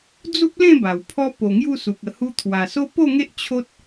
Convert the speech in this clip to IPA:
d͡z u˦ p̚ l ẽ˥˧ b a˨˩ w pʰ ɔ˦ p o˨˩ ŋ j u˥˧ s u˨ k̚ ə˨˩ h u˧ t̪ʰ w a˨˩ s o˦ p o˥˧ ŋ e˦ ʔ t͡ɕʰ o˦ t̚

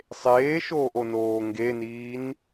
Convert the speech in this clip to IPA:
sˤ eː ʃ oː ʔ o n oː ŋ ɡ e n iː n

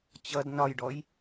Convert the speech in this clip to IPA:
t͡ɕ ʌ d n ɒ j ɖ ɔ j

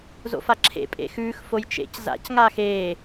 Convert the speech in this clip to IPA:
z o̰ f a ǁʰ ḛ pʼ ḛ x ʉː x f o j t͡ʃ ḛ c z a̰ c ŋ aː x eː

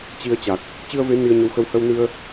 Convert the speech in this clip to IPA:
t͡ɕ i˧ ə̯ t͡ɕ a˨˩ k̚ | t͡ɕ ɨ˧ ə̯ v e˨˦ n i˧ ə̯ ɲ ə˨˦ w x ə˧ w h ə˧ w n ɨ˧ ə̯

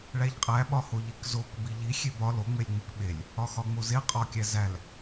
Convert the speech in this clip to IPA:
ɭ æ ʎ qʼ æ ɓ ɒ h o ʎ i k z o k b i ʎ i xʲ e b ɒ l o ŋ͡m e lʲ ŋ͡m i k ɓ e lʲ | ɒ x ɒ ŋ͡m o z e qʼ ɒ kʲ æ z æ l

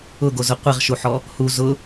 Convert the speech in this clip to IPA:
ʊ ɡ o z ʊ qʷ i ʁ ʃ u ħ ɔ | h u z ʊ

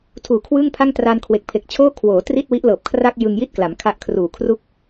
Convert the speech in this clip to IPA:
tʰ uː˨˩ kʰ w ɯː˥˩ ŋ pʰ a˥˩ ŋ t r a˧ n kʰ w e˨˩ k̚ pʰ e˨˩ k̚ t͡ɕʰ oː˥˩ kʰ w oː˩˦ t r i˥˩ t̚ w i˦˥ ʔ l ɤː˨˩ p̚ kʰ r a˥˩ k̚ j ɯ˧ ŋ j i˥˩ t̚ k l a˩˦ m kʰ a˦˥ ʔ kʰ r uː˨˩ kʰ r u˥˩ k̚

